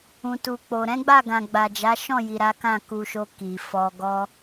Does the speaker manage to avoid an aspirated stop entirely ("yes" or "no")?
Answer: yes